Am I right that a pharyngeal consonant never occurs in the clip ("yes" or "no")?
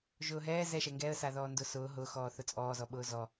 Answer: yes